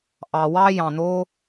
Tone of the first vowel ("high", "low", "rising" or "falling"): low